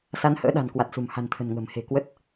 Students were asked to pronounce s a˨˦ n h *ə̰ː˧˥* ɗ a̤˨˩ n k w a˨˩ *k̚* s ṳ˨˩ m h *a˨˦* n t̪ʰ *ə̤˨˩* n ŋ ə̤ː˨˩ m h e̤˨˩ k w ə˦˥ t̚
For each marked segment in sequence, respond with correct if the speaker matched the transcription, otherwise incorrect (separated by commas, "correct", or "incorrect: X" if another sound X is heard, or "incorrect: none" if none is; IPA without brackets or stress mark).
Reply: correct, incorrect: t̚, incorrect: a̤˨˩, correct